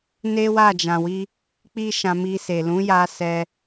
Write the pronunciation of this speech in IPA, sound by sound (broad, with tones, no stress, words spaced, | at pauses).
ne˦wa˦˨ d͡ʒã˨wi˧ | k͡pi˦ʃã˧mi˧ se˨lũ˨˦ja˧ sɛ˧